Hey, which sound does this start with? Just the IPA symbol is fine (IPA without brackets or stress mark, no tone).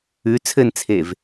ʉ